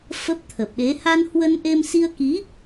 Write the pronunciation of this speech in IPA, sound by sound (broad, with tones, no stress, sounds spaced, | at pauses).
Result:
f ə˦˥ p̚ t̪ʰ ə˨˩ p̚ ɗ e˨˦ h a˧ n h w ə˧ n ʔ e˧ m s i˧ ə̯ k i˨˦